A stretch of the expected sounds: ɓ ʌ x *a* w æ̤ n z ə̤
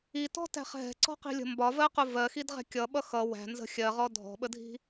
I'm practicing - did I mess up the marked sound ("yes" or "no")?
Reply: yes